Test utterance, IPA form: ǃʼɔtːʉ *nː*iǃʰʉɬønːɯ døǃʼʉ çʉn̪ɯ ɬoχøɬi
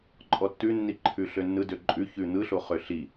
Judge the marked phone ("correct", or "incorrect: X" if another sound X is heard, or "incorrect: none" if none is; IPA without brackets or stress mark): correct